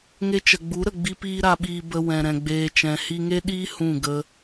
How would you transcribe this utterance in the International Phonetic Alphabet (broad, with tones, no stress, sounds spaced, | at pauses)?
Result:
ŋ e˧ t͡ʃ ə˨ ɡ͡b u˨˦ ɾ ə˨ ɡ͡b i˦ p iː˦ ɾ a˧ ɓ iː˧ b ə˧ w ɛ̃˨ ɾ ɛ̃˨ ɡ͡b eː˨ t͡ʃ ɛ̃˨ h i˧ ŋ e˦ ɗ iː˦ h ũ˦˨ ɡ ə˦